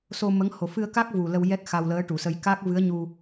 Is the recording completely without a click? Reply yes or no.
yes